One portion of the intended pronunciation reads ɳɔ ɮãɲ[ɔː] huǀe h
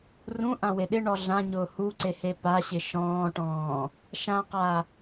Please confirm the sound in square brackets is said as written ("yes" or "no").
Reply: no